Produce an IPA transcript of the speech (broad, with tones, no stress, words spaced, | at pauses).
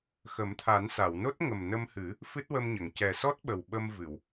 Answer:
xə˨˩˦mt̪ʰa˨˩˦nsa˨˩˨wno˦˥t̚ ŋə˨˩mnə˧mhɨ˨˩˦ | fɨ˦˥t̚wə˧mɲə˨˩˨ŋ cɛ˨˩sɔ˦˥t̚ ɓə˨˩wɓə˧mvɨ˨˩˨w